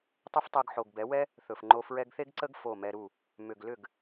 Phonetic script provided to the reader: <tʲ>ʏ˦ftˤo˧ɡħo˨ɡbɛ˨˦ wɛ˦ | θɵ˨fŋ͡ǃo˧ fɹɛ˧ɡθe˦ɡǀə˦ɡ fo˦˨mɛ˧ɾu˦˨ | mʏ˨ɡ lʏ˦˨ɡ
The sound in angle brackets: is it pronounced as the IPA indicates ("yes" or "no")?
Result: no